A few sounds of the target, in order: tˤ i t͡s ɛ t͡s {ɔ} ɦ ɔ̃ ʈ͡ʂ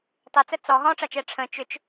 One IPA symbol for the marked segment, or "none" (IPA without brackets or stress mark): ɔ